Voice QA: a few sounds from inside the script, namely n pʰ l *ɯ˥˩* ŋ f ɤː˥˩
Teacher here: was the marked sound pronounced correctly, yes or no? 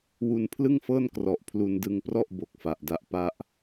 yes